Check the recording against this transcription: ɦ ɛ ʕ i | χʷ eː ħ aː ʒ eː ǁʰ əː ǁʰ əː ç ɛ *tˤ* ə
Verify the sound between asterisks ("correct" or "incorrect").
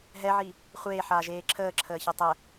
correct